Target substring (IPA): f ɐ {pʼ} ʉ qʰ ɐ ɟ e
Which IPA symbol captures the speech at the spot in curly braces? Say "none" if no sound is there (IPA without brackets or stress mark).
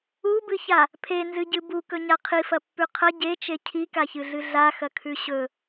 pː